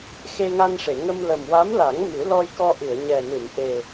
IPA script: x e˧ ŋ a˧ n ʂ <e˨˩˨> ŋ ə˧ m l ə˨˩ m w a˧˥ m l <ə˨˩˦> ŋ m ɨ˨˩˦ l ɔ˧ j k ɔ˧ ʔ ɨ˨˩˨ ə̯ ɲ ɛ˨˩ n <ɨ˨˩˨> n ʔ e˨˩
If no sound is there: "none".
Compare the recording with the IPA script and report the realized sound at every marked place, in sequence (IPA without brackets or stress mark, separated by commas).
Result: e˨˩˨, a˨˩˦, ɨ˨˩˨